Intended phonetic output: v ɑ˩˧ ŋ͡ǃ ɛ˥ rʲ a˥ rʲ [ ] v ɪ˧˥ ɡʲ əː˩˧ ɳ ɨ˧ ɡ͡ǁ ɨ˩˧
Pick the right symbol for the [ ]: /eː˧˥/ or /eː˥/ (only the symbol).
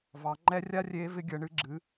eː˧˥